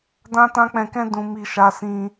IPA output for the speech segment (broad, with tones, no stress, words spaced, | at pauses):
dã˦tã˦k͡pɛ̃˧kɛ̃˦ dũ˧mi˧ ʃa˧sĩ˧